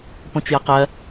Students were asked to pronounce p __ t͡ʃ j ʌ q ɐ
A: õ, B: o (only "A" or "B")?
A